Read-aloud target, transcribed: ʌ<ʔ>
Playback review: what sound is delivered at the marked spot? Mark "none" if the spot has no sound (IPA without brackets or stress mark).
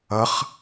χ